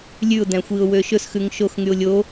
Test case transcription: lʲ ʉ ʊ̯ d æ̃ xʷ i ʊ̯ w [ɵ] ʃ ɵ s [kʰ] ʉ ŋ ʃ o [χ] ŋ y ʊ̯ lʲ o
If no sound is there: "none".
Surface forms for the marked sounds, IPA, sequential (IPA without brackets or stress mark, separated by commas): ø, x, x